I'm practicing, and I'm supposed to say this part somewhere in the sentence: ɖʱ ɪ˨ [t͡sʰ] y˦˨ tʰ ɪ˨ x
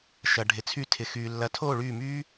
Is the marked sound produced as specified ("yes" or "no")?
yes